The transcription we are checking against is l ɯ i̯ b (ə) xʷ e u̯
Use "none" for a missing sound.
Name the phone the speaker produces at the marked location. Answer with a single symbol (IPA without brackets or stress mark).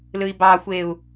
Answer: ɑ